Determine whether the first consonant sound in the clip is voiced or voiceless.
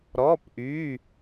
voiced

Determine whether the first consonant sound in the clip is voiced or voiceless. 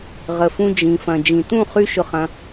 voiced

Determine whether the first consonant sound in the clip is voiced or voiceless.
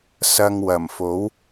voiceless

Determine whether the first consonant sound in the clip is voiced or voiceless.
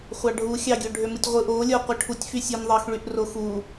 voiceless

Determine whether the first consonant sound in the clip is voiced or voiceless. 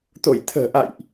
voiceless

